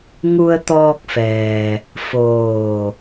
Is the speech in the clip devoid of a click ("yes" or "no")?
yes